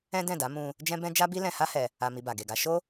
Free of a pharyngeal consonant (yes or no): yes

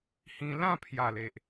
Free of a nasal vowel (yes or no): no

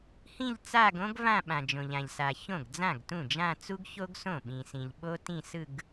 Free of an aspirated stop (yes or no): yes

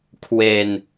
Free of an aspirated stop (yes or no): no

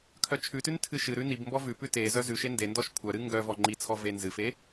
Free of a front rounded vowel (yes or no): no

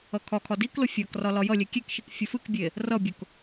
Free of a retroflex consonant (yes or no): yes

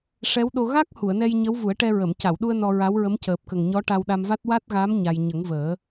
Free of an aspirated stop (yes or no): yes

